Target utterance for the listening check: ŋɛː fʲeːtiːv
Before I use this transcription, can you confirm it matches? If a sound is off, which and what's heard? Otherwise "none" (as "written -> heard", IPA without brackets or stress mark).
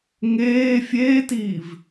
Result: ɛː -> eː